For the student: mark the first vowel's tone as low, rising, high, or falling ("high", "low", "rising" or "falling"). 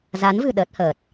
rising